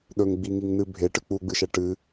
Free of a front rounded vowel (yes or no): yes